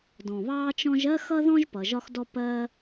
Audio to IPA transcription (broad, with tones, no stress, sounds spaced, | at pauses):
d ɔ̃˩ β ɑː˦ t͡ʃ ɔ̃˦ ʒ ɜ˥ x ʌ˥ ð ɔ̃˥ ʒ p ʌ˨ ʒ ɒ˦ x d ɔ˦ p ɜ˥